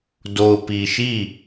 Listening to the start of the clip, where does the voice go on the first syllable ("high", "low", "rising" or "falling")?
low